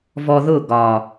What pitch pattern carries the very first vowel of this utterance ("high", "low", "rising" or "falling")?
low